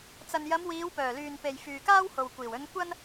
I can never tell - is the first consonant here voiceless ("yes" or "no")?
yes